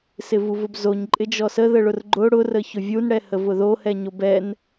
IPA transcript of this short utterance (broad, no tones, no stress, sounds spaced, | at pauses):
s ɪ v u v ʊ b z o ɲ ǃʼ ɪ d͡ʒ ɔ s ə ð ə ɭ ʊ r ɡ͡ǃ ʊ ɽ ʊ r ə ç ʊ vʲ u n ɽ ɛ h ə v ʊ ð o h ɛ ɲ o b ɛ n